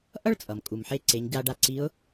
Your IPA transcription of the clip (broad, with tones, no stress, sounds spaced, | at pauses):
ʔ ʌ˥ ɭ t͡sʼ ʌ˩ m kʼ u˩ m ħ e˧˥ ǀ e˩˧ ɲ ɟ a˧ ɖ a˧ ǀ i˧˥ ʊ̯